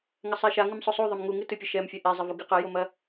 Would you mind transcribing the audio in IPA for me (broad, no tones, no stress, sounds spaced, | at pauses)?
ŋ ɐ sˤ ɛ ʃ a ŋ ɨ m sˤ o sˤ u ðˤ ɘ m ŋ u ŋ ɨ t ɨ pʲ ɘ ʃ ɛ m fʲ ɐ ʔ ɛ zˤ ɛ v u ɡ ɨ q ɐ j o m ɐ